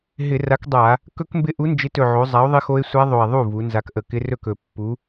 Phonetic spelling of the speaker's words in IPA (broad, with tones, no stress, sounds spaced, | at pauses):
ɦ ɪ˧˩˧ r a˨˥ k dˤ a˧˩˧ | k ɵ˦˥ k m b ɪ˦˥ ʔ u˨˥ n d͡ʒ ɪ˨˥ t ɵ˨˩ ʕ o˩˧ zˤ a˨˥ o̯ ðˤ ɪ˦˥ x o˦˥ e̯ sʷ a˦˥ ðˤ o˨˩ e̯ ðˤ u˥˩ v u˩˧ n z a˨˥ k ʔ ə˨˩ k ɪ˦˥ r ɵ˥˩ k ɵ˨˩ pː u˨˥